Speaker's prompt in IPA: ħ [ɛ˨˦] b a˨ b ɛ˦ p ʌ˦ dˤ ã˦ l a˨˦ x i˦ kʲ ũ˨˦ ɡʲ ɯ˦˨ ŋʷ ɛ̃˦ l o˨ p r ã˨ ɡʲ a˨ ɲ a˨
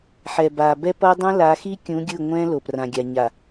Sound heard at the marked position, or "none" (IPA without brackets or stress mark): ɛ˨